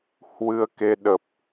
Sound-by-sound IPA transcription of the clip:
h w ɨ˧ ə̯ k e˧ ɗ ə˨˩ p̚

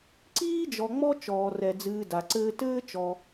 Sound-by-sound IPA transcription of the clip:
ǀ iː˦ d͡ʒ ɔ˨ ŋ͡m ɔ˦ t͡ʃ ɔː˩ r ɛ˩ d͡z ɨː˨ d a˩ ǀ ɘː˦ t ɘː˥ t͡ʃ ɔ˨

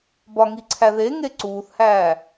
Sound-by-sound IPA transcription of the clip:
b ɒ ŋ i ǀʰ æ ð e ŋ e ǀ uː θ h æː

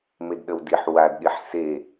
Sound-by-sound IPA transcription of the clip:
m e d ɗ ə w d i ħ w a d ɗ i ħ s e

